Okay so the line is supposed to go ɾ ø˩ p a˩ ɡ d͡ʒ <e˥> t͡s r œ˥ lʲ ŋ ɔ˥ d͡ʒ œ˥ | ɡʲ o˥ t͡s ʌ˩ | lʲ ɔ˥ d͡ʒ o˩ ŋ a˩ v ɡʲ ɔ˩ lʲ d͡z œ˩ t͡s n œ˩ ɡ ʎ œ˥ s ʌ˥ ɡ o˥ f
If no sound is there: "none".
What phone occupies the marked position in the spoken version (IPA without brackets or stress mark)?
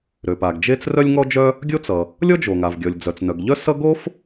e˥